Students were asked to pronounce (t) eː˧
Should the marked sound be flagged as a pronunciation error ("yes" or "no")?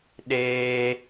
yes